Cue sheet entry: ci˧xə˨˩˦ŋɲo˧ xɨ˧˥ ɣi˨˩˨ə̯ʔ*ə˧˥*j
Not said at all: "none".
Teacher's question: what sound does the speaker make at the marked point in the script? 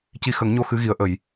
ə˨˩˨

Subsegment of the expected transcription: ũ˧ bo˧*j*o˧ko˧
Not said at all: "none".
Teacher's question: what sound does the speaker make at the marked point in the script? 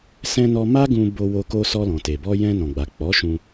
w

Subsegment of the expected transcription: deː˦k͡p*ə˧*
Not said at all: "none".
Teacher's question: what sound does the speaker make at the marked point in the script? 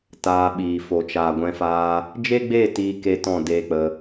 ə˧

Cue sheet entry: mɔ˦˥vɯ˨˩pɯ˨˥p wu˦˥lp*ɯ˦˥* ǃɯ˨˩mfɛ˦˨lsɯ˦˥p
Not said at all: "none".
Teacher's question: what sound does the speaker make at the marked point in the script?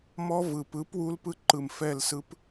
ɯ˦˥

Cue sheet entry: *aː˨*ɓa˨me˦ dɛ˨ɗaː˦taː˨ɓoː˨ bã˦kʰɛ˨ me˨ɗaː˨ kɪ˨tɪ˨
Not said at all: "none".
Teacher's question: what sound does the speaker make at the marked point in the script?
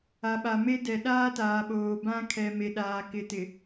a˨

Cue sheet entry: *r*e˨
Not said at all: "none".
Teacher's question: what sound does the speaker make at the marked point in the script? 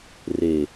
r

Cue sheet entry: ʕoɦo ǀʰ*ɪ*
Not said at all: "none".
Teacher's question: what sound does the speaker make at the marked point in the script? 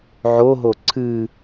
ɨ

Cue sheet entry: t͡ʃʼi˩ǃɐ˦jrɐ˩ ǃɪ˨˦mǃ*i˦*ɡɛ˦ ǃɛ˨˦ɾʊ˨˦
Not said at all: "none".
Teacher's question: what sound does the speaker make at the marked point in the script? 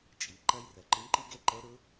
i˦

